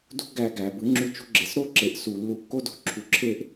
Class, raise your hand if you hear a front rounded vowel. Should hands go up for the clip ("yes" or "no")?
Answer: yes